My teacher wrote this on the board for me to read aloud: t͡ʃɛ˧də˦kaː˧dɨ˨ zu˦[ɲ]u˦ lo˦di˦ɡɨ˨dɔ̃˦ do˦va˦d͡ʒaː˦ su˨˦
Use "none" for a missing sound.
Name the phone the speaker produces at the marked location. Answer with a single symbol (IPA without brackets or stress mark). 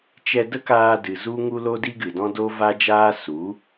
ŋ